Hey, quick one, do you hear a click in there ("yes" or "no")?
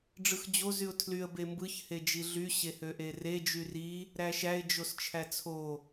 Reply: no